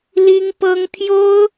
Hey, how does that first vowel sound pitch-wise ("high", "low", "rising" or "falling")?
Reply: high